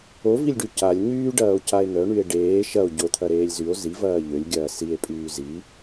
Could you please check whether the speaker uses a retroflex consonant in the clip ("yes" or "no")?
yes